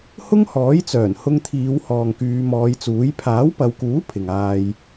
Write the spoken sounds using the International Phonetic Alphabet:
h ʊ˥ ŋ h ɔː˨˥ j t͡s œː˨˩ n h ʊ˧ ŋ t̪ʰ iː˨˧ w h ɔː˨ ŋ k yː˨˧ m ɔː˨˧ j t͡s uː˨˥ j pʰ aː˨˥ w p ɐ˨˧ w k uː˨˥ pʰ ɪ˨ ŋ aː˧ j

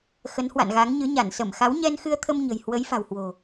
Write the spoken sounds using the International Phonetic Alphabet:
x ə˨˦ n h w a̰˧˨ n ɣ a˨˦ ŋ ɲ ɨ˨˦ ɲ a˧˩ n s ə˧˩ m x a˨˦ w ɲ ɛ˧ n x ɨ˧ ə̯ t̪ʰ ə˧ m ɲ ə̤˨˩ j h w ə˨˦ j f a̤˨˩ w h w o̤˨˩

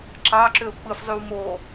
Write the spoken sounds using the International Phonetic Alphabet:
ǁ ɑ ǁ ø ʊ̯ k͡p ɯ f zˤ y w m o

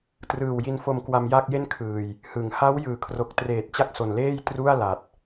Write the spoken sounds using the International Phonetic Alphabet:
t r ɯː˨˩ w j i˧ n f o˧ m k w a˧ m j a˥˩ k̚ j e˥˩ n kʰ ɯː˨˩ j | h ɯ˩˦ ŋ h a˦˥ w j ɯː˨˩ kʰ r o˨˩ k̚ t r eː˨˩ t̚ t͡ɕ a˥˩ k̚ s o˨˩ n l eː˥˩ j t r u˥˩ a̯ l a˨˩ t̚

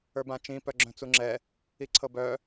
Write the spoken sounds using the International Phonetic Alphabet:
ə˞ b ã t͡ʃ ĩ p œ ɡ͡ǁ œ̃ t͡s u ŋ͡ǁ ɛ | i ǀʰ ɤ b œ

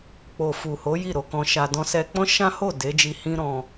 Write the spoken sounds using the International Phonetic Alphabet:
k͡p o˨ f u˨ h o˨˦ j i˦˨ ɾ o˧ k ɔ̃˧ ʃ a˧ d ɔ̃˦ s ɛ˧ k͡p ɔ̃˦ ʃ ã˦ h o˦˨ d e˨˦ d͡ʒ i˧ h ĩ˦ ɾ ɔ̃˧

